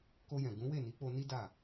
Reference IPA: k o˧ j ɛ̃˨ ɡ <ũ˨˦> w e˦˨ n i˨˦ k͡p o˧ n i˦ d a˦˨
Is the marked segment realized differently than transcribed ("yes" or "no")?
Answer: no